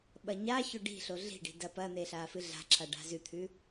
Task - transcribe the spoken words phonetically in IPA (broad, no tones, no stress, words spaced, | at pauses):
ɓɐɲaço ɖi̤ɬo ɮi̤ɖi̤ dɐpɐn̪e ɬaːfɨɮa̤ǁa ɖa̤zʉt̪ʰʉ